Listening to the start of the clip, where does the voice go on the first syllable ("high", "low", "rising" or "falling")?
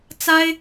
high